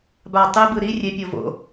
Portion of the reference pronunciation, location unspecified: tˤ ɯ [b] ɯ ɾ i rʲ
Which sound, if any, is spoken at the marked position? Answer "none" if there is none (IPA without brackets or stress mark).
b